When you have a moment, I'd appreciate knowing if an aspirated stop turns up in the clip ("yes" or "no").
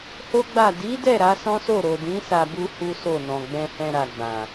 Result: no